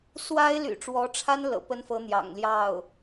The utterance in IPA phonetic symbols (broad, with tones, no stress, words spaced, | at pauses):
swa˥ɪ̯ly̰˨˩ʈ͡ʂwɔ˧˥ʈ͡ʂʰa˥n lɤ̰˨˩pə˥nfɤ˧˥ n̪jɑ̰˨˩ŋljɑ˥˩ʊ̯